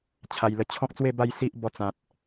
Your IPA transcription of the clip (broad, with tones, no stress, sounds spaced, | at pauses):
t͡ɕʰ a˨˩ j l ə˧ t͡ɕʰ ɔ̃˦ k̚ t͡s w e˥˧ b a˥˧ j s i˦ ʔ b ɔ˧ t͡s ã˨ t̚